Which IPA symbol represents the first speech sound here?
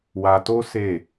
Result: w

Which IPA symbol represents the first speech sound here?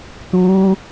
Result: t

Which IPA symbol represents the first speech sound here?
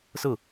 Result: s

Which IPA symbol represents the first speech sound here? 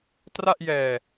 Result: t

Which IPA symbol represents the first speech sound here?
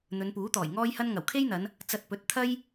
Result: n̪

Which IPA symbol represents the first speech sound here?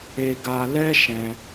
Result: e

